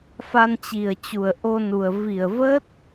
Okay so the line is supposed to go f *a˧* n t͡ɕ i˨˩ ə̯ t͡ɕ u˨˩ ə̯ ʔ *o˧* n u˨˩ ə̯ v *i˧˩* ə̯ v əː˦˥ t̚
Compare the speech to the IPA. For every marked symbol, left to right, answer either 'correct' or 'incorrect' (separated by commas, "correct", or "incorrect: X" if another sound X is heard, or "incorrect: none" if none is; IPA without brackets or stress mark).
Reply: correct, correct, correct